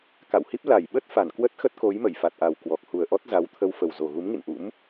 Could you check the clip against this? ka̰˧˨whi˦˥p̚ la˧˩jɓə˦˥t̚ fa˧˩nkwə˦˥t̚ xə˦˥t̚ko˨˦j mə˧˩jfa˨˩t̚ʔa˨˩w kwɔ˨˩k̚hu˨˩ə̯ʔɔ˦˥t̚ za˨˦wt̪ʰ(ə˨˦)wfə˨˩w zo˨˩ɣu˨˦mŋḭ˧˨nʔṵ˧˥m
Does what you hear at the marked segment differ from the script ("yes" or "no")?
yes